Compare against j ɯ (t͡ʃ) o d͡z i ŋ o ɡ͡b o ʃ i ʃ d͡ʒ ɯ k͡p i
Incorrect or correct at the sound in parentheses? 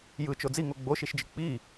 correct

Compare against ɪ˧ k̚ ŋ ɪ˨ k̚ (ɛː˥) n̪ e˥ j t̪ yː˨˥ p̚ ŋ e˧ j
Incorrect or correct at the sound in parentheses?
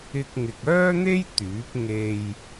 incorrect: œː˥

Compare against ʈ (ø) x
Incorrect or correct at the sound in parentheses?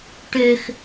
correct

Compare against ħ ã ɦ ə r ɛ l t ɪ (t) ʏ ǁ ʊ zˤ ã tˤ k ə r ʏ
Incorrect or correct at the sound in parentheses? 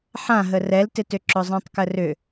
correct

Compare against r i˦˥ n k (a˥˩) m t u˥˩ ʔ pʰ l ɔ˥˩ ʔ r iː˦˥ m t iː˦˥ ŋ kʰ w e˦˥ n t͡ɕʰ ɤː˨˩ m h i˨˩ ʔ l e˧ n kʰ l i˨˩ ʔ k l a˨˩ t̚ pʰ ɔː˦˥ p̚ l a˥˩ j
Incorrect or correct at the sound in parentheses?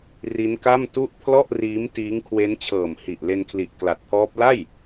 correct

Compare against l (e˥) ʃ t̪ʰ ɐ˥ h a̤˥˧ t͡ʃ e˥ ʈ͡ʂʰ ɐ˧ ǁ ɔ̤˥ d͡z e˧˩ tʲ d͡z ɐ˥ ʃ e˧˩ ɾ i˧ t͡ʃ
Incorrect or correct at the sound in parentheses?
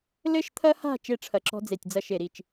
incorrect: ɘ˥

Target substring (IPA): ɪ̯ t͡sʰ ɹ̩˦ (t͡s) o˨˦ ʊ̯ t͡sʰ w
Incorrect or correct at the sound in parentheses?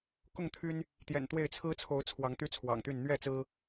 incorrect: t͡sʰ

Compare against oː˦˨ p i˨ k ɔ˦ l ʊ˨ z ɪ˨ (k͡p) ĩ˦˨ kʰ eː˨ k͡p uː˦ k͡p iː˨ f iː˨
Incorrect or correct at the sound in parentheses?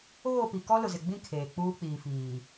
incorrect: ɡ͡b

